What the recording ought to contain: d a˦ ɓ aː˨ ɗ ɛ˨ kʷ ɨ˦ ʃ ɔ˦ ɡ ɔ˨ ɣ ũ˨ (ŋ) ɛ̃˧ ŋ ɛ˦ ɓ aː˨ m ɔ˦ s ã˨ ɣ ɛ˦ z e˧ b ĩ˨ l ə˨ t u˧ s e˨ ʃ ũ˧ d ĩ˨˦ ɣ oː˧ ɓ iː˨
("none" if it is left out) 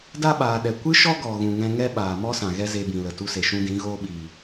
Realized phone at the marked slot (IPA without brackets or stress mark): ŋ